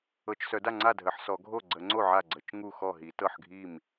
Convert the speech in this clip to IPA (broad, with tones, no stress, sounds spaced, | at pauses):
ɤ˨˩˦ t͡ʃ s œ˨˩˦ d a˥˩ ŋ͡ǀ a˥˩ dʱ ə˨˩˦ ħ s ɔ˨˩˦ ɡʱ o˥˩ ɡ͡ǀ ə˨˩˦ ŋ͡ǀ o˥˩ ʕ a˥˩ ɡ͡ǀ ə˨˩˦ t͡ʃ ŋ u˥˩ x ɔ˥˩ ɦ i˨˩˦ t ɤ˥˩ ħ ɡʱ i˥˩ m